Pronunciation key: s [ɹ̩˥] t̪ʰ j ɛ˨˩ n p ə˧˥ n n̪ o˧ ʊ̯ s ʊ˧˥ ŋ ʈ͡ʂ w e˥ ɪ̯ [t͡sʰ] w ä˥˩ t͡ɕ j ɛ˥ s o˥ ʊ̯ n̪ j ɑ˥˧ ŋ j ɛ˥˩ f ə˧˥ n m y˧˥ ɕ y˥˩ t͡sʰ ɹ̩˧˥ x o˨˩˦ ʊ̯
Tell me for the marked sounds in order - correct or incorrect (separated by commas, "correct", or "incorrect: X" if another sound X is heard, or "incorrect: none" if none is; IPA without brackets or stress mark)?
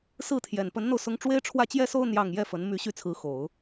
incorrect: ɹ̩˥˩, incorrect: ʈ͡ʂʰ